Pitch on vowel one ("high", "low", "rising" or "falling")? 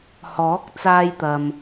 rising